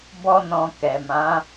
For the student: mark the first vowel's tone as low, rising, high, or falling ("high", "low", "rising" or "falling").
high